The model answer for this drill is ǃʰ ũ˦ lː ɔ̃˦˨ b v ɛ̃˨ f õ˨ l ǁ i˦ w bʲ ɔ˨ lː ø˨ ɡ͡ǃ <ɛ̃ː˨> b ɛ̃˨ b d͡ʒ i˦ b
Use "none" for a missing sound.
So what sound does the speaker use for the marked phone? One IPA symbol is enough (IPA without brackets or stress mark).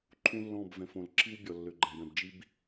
ɛ̃˨